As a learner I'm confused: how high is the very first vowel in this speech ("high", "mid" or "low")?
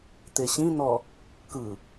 mid